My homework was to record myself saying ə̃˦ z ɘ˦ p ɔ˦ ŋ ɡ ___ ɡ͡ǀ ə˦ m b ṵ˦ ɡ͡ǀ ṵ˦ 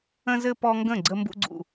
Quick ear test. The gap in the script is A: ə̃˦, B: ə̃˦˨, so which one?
B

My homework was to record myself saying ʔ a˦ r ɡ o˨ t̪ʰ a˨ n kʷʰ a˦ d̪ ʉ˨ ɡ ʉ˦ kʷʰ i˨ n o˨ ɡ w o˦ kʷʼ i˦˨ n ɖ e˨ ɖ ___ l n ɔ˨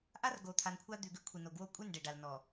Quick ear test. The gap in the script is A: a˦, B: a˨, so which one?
B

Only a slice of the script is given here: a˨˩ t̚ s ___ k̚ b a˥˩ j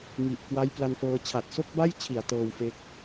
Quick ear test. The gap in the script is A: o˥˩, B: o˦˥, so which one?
A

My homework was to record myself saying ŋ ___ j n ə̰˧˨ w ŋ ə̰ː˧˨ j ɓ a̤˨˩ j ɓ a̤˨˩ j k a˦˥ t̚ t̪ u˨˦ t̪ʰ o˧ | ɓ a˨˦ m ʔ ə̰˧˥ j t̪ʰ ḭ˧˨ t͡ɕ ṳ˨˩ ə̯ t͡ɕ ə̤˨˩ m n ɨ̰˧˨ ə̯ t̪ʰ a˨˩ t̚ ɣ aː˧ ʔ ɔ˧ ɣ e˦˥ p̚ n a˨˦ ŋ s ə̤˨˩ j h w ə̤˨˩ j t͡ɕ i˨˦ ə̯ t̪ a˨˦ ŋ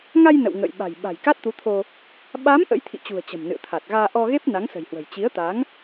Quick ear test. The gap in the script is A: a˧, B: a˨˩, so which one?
A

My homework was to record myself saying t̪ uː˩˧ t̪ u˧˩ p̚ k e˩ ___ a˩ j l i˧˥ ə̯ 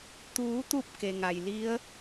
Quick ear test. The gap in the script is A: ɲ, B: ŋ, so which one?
B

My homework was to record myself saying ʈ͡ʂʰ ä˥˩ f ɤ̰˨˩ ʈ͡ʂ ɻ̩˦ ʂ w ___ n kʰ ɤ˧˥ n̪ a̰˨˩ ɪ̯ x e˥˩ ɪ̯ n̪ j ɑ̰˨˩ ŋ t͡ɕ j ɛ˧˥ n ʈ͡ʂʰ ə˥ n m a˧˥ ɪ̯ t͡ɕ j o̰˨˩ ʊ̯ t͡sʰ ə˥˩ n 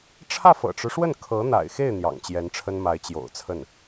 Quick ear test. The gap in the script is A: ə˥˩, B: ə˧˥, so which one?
A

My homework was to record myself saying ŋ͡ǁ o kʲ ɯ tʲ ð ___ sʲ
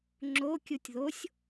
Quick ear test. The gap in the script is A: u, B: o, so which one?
B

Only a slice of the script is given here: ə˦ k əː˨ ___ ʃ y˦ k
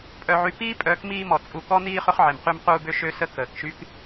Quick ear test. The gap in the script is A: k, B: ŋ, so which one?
A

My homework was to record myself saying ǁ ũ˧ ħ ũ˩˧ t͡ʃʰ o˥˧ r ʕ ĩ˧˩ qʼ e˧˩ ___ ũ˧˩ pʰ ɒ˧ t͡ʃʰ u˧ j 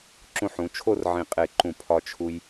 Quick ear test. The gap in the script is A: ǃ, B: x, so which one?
A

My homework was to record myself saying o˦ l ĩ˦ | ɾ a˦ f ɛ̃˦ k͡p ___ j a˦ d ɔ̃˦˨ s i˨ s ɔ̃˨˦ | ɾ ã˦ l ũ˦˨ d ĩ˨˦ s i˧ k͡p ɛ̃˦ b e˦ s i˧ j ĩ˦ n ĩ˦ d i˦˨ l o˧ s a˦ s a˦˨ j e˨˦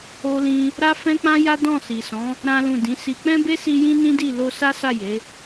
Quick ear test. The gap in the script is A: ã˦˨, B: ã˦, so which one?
B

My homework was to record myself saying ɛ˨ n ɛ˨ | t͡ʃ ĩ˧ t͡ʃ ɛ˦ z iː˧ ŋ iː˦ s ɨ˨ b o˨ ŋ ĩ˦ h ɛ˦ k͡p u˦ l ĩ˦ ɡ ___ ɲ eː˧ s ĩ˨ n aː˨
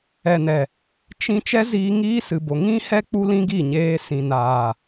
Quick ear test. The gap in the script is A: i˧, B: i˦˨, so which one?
B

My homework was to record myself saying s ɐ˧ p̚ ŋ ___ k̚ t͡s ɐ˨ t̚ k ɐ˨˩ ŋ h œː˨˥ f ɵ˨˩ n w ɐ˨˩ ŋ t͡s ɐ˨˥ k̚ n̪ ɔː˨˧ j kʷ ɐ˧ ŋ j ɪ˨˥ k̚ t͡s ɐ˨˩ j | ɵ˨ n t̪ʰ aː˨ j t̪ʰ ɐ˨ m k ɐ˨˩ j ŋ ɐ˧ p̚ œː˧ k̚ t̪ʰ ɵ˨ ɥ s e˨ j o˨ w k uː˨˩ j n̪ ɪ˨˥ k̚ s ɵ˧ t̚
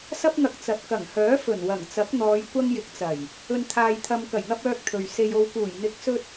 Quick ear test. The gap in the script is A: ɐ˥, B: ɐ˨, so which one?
B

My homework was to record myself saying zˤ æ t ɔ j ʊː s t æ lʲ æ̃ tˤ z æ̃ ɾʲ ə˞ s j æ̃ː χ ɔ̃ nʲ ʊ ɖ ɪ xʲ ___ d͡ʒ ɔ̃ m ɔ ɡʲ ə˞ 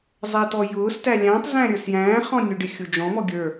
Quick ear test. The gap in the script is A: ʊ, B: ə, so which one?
A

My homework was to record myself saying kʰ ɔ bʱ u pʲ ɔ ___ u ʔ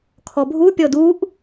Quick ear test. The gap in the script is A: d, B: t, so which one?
A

